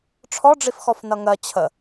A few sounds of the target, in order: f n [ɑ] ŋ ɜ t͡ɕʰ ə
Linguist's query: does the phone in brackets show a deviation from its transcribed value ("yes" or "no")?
yes